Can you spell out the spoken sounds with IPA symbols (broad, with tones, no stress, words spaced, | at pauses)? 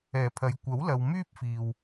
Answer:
ɛː˨˩pʰɐ˨˧j kʷɐ˨˥wlɐ˨w myː˥p̚fiː˨w